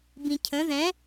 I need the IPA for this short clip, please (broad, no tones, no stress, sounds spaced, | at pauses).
b ĩ cʰ ə̃ ð ɛ̃